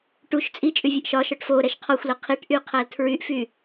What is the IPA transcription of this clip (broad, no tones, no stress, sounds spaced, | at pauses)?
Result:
ʈ u ʃ t͡sʼ i t͡ʃʼ y vʲ ʌ ʔ ʃ ɒ ʃ ɒ ʈ f o ɾ ɛ ʃ qʰ ɒ xʷ l ə qʰ i ʈ ʔ y qʰ æ l tʰ ɹ y ʔ f y